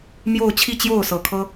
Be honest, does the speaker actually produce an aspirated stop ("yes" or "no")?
yes